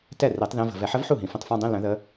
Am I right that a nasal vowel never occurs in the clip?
no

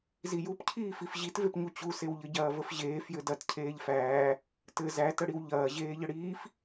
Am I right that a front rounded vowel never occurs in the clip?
yes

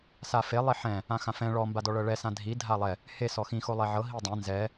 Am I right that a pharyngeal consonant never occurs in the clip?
no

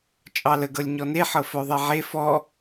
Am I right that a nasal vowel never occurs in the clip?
yes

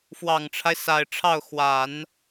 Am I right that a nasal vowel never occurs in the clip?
yes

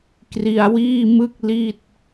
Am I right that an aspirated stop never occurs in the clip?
yes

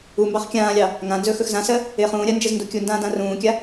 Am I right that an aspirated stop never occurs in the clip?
yes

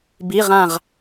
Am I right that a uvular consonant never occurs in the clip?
no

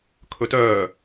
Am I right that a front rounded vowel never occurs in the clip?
no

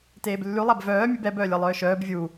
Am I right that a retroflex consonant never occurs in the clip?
yes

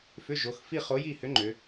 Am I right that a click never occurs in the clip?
no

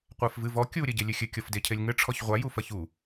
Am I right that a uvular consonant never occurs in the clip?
no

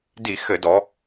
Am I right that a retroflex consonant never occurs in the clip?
yes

